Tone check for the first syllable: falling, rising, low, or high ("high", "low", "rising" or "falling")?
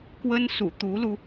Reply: high